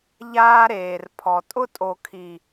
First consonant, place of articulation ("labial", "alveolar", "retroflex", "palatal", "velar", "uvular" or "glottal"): palatal